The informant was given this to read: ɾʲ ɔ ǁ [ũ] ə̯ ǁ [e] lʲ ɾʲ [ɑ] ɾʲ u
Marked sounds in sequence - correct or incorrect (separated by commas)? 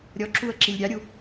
incorrect, incorrect, correct